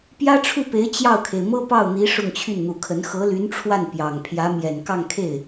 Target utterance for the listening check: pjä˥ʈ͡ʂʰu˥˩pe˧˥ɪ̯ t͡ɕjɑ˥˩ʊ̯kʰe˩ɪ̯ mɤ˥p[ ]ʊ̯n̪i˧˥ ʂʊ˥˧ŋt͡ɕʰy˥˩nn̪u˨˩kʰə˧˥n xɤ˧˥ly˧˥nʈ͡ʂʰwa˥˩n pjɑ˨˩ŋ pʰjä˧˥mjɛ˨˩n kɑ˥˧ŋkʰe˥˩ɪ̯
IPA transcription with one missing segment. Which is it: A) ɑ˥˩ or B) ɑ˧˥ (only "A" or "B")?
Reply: A